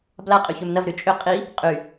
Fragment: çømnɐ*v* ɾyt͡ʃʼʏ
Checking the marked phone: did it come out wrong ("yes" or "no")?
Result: no